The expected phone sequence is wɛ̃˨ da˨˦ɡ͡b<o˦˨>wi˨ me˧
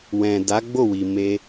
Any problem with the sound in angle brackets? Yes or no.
no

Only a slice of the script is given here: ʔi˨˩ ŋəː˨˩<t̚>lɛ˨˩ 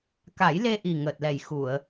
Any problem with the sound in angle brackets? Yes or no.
no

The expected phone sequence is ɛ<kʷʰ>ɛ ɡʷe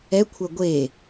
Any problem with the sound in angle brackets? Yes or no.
no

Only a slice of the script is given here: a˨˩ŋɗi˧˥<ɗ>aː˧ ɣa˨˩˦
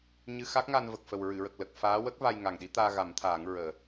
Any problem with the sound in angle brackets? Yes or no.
yes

